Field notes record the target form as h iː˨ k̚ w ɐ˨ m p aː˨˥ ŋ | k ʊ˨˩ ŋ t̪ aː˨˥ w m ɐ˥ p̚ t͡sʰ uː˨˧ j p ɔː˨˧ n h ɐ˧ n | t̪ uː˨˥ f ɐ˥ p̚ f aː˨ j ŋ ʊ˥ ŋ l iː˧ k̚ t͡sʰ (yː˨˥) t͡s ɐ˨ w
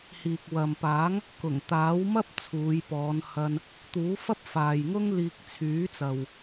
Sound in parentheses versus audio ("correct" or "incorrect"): correct